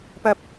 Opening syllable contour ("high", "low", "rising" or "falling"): low